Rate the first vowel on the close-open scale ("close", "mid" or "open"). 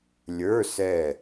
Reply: mid